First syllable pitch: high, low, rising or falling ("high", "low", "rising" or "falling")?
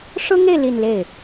high